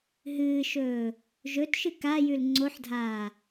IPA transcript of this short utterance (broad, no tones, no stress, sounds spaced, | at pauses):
ɦ ɨː ʃ ɵː | ʒ ɵ t ʃ ɨ k a j ʉ l ŋ͡ǀ o ħ dʱ aː